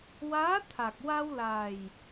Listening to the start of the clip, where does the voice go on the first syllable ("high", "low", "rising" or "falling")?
rising